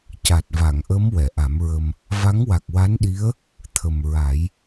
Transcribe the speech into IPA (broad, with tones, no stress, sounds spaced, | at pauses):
c a˨˩ t̚ v a˨˩˨ ŋ ʔ ə˧˥ m w ɛ˨˩˨ ʔ a˨˩˦ m ɹ ə˧ m | v a˧˥ ŋ w a˨˩ k̚ w a˧˥ n ɗ i˧˥ ə̯ | t̪ʰ ə˨˩ m ɹ a˨˩˦ j